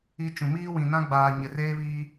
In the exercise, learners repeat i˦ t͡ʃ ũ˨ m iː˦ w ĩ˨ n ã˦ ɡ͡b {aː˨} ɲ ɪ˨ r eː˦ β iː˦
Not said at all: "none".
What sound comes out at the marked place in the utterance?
aː˨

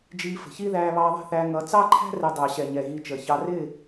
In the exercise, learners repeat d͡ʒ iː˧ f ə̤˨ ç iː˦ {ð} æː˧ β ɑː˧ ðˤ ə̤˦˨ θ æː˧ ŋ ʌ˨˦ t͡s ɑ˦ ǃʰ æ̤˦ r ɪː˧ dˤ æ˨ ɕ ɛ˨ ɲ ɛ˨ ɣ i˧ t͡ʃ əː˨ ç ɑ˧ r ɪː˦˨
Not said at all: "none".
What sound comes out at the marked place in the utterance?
ð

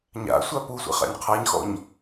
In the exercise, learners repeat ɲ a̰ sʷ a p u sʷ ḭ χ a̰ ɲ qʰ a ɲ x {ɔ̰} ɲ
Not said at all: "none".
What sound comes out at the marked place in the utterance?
ɔ̰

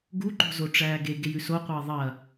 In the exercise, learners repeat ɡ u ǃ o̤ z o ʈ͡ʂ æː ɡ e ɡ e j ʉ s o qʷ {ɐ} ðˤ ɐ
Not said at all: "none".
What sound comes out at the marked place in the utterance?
ɐː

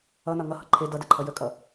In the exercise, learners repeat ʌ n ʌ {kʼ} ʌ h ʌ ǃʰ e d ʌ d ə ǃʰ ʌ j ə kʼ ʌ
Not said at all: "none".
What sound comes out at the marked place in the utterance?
ŋ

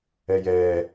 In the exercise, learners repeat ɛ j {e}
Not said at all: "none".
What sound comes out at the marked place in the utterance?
ɛ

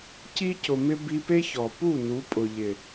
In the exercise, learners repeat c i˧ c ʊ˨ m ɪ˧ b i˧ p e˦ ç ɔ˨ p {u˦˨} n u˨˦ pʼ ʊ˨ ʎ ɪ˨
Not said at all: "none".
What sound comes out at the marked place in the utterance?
u˦˨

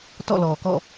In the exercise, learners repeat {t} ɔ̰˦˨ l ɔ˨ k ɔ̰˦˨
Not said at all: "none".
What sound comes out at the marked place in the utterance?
t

